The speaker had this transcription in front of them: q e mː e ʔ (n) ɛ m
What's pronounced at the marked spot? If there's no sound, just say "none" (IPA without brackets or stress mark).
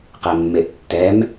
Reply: tː